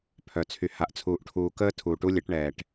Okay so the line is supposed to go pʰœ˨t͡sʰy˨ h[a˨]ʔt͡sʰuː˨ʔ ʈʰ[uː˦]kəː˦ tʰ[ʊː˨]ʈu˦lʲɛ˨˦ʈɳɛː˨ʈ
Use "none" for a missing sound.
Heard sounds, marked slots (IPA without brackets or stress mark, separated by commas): a˨, uː˨, uː˨